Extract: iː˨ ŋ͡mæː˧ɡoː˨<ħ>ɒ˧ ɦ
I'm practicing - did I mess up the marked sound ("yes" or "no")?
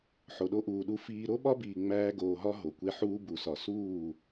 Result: yes